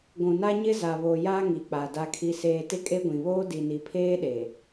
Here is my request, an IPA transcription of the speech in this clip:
ɡʷ ũ˨ n a˦ ɲ ɪ˦ z a˨ β o˨ j a˦ ŋ i˨ k͡p a˨ d a˨ kʰ i˨ s eː˨ t ɪ˦ kʼ e˦ ɡʷ ĩ˨ β oː˦ d i˨ n i˨ pʰ eː˦ ɗ e˨

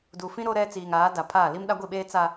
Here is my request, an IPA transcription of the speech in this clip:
d u˨ f ĩ˦ ɾ o˦ ɾ ɛ˦ t͡s iː˨ ŋ aː˨˦ d a˨ pʰ aː˦˨ l i˦ m ɗ a˦ ɡʷ i˦˨ ɓ eː˦ t͡s a˦

